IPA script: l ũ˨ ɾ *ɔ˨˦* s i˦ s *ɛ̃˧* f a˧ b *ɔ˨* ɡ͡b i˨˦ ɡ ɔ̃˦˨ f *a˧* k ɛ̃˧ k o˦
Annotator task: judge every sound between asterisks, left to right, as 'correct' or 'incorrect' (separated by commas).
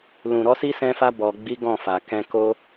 correct, correct, correct, incorrect